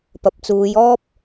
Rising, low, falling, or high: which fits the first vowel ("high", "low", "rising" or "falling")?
low